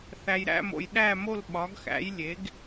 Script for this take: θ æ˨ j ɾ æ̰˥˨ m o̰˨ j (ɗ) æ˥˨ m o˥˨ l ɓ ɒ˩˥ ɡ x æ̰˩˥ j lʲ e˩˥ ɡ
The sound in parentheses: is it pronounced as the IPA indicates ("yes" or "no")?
yes